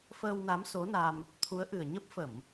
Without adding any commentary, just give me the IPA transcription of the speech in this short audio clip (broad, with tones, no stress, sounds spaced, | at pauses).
f əː˧ w n a˨˦ m s o˨˦ n a˧ m | t̪ʰ u˨˦ ə̯ ʔ ɨ˨˩ ə̯ ɲ ə˦˥ p̚ f ə˧˩˨ m